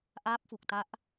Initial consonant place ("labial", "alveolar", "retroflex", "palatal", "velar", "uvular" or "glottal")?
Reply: glottal